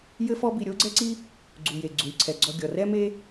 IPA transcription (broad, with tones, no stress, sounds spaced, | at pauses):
j ɘ˥ f ɔ˥ b i˧ ɾʲ o˥ ɡ͡ǀ ɛ˥ ǀ i˥ | ɡ͡ǀ u˩ j e˩ ɡ͡ǀ u˩ lʲ ǀʰ ɛ˩ ɡ͡ǀ ɔ˧ ɡʲ ɔ˩ r ɛ˥ m e˥